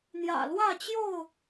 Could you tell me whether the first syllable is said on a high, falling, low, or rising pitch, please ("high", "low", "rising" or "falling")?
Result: low